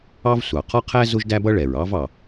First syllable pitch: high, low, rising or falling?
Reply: high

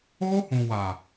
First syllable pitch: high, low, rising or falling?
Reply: high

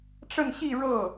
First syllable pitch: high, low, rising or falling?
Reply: falling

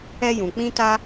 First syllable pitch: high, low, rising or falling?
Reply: high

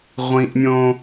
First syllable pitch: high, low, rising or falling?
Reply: high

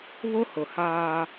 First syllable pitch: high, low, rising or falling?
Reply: high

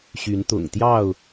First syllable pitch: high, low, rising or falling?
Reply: rising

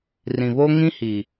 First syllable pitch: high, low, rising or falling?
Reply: low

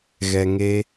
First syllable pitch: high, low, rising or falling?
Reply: low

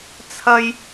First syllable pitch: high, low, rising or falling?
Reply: high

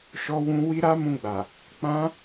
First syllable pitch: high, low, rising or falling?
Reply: high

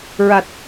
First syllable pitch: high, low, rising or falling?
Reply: low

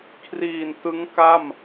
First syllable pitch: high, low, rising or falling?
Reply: low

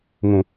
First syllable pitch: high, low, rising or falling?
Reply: low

